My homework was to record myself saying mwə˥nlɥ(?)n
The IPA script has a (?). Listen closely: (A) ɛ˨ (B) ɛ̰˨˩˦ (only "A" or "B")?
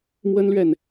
A